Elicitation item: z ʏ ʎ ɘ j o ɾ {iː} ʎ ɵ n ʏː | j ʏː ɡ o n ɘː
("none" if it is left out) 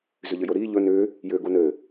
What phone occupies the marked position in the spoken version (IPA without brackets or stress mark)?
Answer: iː